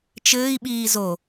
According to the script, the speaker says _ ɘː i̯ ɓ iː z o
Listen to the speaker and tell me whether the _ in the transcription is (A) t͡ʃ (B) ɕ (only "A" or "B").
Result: A